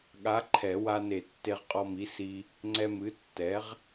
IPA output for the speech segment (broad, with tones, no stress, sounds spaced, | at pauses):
ɠ a˨˥ ǃʰ ɛ˨˩˦ w a˧ n e˨˩˦ tː e˧ ʁ qʼ ɔ˧ m i˨˥ s i˧ | ŋ͡ǀ ɛ˧ m ɨ˨˥ tː ɛ˨˥ ʁ